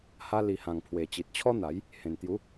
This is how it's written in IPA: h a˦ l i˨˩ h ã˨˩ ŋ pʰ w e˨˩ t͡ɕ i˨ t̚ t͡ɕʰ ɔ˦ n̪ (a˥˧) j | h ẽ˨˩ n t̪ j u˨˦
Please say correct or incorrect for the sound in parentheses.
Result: incorrect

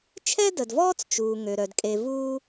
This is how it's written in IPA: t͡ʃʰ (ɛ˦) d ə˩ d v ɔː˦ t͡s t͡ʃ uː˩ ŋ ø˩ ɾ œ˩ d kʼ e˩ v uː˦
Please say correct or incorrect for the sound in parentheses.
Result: correct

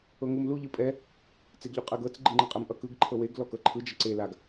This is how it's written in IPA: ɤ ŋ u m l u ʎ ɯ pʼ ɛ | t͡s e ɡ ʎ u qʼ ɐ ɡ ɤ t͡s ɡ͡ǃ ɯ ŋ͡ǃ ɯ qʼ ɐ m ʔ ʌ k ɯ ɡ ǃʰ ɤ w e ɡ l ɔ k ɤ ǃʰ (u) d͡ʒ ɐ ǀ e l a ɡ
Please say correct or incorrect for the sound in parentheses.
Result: incorrect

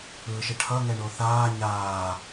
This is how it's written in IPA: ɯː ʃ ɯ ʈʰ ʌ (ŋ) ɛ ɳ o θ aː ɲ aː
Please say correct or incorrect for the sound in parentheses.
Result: correct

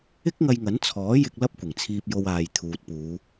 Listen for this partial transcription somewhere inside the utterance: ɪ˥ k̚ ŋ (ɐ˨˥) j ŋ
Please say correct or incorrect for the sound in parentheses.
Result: incorrect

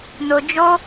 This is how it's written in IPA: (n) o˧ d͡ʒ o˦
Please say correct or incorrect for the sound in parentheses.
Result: correct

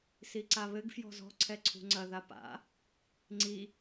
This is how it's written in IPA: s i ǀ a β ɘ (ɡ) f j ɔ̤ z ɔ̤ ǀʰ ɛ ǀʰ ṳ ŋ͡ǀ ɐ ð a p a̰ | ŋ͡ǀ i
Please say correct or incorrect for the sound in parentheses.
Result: correct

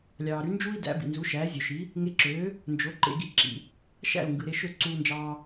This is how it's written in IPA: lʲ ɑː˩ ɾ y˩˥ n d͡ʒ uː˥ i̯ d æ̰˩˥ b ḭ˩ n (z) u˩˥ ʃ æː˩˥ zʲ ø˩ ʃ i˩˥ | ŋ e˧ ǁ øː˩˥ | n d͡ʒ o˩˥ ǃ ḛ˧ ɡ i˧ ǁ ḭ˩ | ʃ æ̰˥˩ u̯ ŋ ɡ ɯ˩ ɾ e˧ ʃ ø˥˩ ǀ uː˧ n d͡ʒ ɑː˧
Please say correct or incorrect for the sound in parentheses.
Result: correct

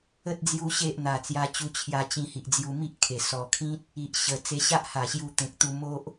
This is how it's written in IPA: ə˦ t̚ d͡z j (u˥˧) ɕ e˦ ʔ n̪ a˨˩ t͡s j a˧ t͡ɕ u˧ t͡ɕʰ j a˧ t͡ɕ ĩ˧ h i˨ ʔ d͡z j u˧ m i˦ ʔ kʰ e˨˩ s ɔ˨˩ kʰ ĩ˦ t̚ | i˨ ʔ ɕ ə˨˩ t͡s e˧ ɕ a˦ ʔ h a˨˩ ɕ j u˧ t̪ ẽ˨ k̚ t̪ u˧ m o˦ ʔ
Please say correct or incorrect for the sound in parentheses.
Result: incorrect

